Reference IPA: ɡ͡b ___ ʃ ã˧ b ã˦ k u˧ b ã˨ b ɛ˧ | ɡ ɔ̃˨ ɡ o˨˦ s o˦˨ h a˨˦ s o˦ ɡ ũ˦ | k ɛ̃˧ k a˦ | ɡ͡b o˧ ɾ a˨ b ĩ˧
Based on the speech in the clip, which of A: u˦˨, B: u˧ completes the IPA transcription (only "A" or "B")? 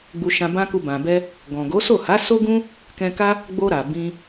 B